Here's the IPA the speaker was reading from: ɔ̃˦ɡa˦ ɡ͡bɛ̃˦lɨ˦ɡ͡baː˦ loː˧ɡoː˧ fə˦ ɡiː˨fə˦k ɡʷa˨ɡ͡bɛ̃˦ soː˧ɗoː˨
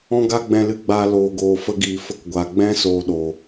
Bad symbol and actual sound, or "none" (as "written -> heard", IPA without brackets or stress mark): none